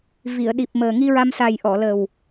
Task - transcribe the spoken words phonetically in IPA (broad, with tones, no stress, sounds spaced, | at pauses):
v i˨˩˨ ə̯ ɗ i˨˩ p̚ m əː˨˩ ŋ i˧ ɹ a˧ m s a˨˩ j ʔ ɔ˨˩˨ l ə˨˩ w